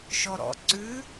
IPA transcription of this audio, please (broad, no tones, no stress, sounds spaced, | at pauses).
ʃ ɔ ɾ ɔ̰ ǀ ʉ